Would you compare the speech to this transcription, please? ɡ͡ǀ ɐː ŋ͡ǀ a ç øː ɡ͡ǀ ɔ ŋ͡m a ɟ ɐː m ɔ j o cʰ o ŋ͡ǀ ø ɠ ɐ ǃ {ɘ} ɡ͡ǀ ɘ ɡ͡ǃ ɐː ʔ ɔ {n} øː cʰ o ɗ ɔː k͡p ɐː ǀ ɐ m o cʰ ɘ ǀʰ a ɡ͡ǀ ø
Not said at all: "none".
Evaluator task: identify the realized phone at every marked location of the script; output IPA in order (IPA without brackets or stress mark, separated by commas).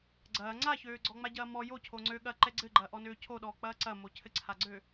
ɛ, n